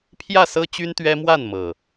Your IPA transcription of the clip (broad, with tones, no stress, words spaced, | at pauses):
pʰjä˥˨sɤ˦t͡ɕy˦n t̪ɥɛ˦mwa˥˨nmɤ˨˩